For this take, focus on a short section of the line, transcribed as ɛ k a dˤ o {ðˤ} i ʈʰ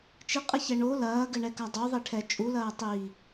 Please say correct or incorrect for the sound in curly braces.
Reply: correct